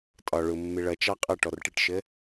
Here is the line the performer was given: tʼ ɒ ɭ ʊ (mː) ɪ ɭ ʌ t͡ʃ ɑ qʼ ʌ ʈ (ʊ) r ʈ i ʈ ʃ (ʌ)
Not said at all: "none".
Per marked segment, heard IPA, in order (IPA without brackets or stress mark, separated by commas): mː, ɔ, ə